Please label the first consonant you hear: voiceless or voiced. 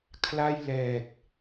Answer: voiceless